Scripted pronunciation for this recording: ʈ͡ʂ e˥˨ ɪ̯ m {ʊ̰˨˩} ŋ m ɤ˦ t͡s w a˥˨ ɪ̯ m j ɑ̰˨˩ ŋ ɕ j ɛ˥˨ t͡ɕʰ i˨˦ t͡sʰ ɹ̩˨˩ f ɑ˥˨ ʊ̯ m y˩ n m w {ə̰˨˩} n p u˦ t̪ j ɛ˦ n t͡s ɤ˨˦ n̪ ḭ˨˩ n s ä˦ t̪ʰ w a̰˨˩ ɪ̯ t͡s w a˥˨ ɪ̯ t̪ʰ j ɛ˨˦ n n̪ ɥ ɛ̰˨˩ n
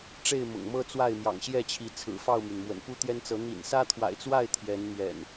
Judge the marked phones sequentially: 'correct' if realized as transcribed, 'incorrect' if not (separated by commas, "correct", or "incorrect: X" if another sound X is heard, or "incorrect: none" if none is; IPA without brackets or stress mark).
correct, correct